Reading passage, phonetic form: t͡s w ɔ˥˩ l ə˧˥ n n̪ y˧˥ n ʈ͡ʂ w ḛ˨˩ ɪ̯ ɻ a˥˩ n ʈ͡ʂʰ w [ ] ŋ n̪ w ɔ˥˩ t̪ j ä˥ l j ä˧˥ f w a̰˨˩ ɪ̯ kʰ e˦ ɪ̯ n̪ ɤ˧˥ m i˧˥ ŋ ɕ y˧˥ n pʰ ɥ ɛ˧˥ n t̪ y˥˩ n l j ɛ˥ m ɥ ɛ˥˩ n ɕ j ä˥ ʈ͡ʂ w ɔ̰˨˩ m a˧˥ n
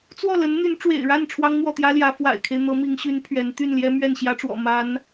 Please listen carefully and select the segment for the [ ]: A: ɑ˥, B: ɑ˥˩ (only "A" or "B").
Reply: A